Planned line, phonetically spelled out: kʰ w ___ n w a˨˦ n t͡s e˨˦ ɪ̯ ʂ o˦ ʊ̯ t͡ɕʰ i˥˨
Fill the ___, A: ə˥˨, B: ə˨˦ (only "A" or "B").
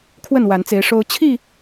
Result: A